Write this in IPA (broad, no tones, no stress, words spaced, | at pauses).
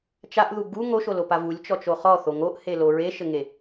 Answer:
t͡ʃaʔðu ɡu ŋoʃolopa vulʲt͡ʃɔt͡ʃo χɔθo ŋoʔhelo ɹeʃɘŋe